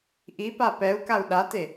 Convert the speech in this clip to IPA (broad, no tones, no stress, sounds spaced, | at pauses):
ʔ i p a p ɛ u̯ k a u̯ ɗ a t e